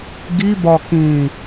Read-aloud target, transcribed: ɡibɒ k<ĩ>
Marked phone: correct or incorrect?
correct